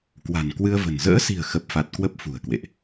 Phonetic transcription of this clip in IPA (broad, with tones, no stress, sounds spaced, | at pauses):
k w a̤˨˩ n k w ɨ˧ ə̯ v ə̤˨˩ n z ə̰ː˧˥ s i̤˨˩ ə̯ x ə˨˩ p̚ f a˨˩ t̚ k w ə˦˥ p̚ f ṳ˨˩ ə̯ k w ḛ˧˨ ʔ